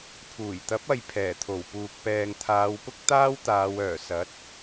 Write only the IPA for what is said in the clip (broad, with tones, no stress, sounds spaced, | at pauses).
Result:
pʰ uː˨˩ j t̪ ɐ˨˥ p̚ ɐ˨ j pʰ ɛː˨˩ t̪ʰ o˨˩ w p uː˨ k̚ p ɛː˨ ŋ t̪ʰ aː˨˧ w p ʊ˥ k̚ t̪ aː˥ w t̪ aː˨˧ w œː˨˩ s ɐ˨˥ t̚